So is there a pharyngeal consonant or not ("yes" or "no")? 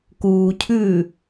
no